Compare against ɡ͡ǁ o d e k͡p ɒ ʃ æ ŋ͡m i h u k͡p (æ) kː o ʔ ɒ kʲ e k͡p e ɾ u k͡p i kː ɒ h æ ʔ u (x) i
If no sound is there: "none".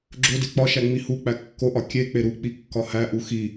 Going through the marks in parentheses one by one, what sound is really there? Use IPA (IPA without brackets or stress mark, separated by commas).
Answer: æ, x